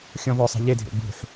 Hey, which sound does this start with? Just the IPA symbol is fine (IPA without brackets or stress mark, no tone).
xʲ